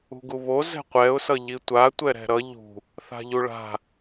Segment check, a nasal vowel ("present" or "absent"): absent